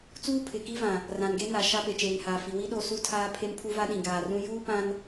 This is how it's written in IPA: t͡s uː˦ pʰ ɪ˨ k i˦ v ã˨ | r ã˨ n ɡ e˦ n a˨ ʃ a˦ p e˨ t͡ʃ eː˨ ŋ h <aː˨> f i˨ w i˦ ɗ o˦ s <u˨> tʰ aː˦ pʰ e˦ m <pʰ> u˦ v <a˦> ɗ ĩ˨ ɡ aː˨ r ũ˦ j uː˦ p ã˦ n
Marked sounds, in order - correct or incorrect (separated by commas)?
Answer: correct, incorrect, correct, correct